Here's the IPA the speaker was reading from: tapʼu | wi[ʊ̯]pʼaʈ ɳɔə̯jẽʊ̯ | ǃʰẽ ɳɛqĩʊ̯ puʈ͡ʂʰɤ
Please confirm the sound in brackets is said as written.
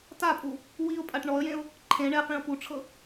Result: yes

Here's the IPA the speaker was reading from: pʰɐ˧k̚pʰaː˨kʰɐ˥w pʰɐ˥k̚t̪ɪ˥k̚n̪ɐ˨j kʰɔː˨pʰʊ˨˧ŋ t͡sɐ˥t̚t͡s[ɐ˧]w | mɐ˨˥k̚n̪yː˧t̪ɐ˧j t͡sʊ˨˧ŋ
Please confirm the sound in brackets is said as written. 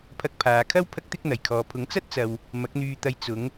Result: no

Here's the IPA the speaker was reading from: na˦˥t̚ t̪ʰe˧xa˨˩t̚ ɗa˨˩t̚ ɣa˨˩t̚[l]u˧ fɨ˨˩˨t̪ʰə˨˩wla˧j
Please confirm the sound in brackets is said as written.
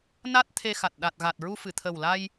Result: no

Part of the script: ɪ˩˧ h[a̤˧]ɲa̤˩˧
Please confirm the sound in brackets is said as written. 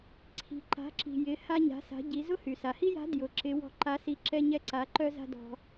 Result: no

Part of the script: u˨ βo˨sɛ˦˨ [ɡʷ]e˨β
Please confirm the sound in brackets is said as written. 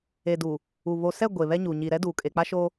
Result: yes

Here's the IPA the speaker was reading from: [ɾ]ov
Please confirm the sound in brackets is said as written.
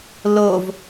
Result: no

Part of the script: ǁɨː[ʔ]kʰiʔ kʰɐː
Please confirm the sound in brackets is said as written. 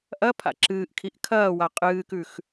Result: yes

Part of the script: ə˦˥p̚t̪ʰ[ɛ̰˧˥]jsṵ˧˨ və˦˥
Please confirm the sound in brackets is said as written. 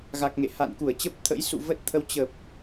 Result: no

